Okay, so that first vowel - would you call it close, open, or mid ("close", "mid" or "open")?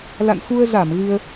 open